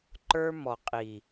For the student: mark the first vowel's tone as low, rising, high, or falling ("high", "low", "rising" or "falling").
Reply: high